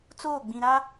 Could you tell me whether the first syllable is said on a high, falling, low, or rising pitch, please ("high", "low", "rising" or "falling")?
falling